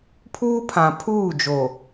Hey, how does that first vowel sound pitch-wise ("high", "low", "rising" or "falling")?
high